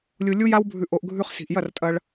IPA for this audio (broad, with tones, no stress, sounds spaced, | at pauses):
lʲ u˧ lʲ u˦ j a˦ w bʱ ʉ˧ ʔ o˧ ʔ ɡʱ ʉ˧ χ s i̤˨ ʔ j ɐ˦˨ r tʼ ɐ˧ ɭ